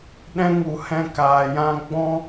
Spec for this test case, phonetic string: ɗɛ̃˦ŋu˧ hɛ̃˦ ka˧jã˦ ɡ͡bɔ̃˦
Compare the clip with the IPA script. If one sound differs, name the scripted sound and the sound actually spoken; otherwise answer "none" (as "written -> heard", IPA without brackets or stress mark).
a˧ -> aː˧